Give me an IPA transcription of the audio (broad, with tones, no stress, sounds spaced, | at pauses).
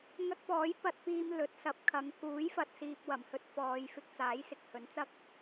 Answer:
ŋ ɐ˧ k̚ p ɔː˨˥ j p ɐ˧ t̚ p iː˧ m l ɵ˨˥ t̚ s ɐ˨˥ p̚ kʰ ɐ˨˧ ŋ k uː˨˥ j f ɐ˨ t̚ s iː˧ p̚ w ɐ˨˩ m h ɵ˥ t̚ f ɔː˨˧ j f ɪ˧ k̚ t͡s aː˨˥ j s ɪ˨ k̚ h ɵ˨˥ n t͡s ɐ˥ k̚